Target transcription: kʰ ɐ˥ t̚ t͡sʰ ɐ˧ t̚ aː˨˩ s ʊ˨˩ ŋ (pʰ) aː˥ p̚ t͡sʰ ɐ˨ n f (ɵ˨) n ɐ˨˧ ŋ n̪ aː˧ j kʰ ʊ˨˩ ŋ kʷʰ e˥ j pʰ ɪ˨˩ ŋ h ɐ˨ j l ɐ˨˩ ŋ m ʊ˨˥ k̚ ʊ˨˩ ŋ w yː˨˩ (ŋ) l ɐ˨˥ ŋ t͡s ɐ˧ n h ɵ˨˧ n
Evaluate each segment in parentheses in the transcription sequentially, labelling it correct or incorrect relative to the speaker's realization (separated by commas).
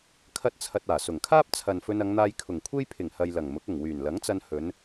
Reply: incorrect, incorrect, incorrect